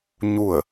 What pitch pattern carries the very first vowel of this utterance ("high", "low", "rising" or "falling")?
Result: falling